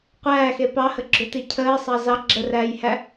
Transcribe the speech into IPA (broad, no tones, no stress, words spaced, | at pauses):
qʷæːxe pɑhəɡ͡ǁʏti cʰəːsˤɑ zɑ ɡ͡ǁəræːjhæ